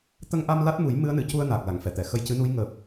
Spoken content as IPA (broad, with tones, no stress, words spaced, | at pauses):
t̪ə˧ŋʔa˧m la˦˥t̚mu˨˩˦j mɨ˧˥ə̯nɨ˨˩˨cu˧ə̯ naː˨˩k̚la˨˩˨ŋfɛ˨˩˨t̪ɛ˨˩˨ xə˧jcɨ˧˥nu˧˥j ŋəː˨˩p̚